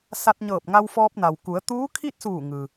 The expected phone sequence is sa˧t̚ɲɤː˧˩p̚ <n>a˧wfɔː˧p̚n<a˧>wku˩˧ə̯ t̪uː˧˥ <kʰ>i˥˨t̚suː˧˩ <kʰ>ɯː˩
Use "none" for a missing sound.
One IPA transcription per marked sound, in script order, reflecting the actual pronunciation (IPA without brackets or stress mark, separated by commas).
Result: ŋ, a˩, kʰ, ŋ